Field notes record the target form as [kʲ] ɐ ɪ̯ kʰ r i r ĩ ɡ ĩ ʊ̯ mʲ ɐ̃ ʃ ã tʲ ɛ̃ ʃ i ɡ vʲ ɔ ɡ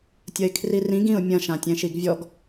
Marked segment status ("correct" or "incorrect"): incorrect